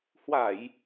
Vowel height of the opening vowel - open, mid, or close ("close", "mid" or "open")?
open